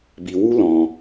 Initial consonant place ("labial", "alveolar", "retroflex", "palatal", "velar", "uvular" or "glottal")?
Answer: labial